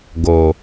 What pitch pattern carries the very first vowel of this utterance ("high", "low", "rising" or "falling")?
low